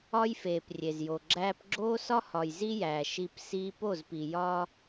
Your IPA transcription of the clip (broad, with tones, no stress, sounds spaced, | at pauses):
ɒ˦ j f eː˨ p rʲ e˨ z j o˨ ɡ͡ǁ æː˦ p ɡ͡ǁ oː˦ s ɒ˦ h ɒ˨ j z i˦ j æː˨ ʃ i˧ p s iː˦ p o˦˨ z p i˨ j ɒː˦